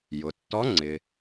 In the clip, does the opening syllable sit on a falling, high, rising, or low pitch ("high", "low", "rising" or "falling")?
low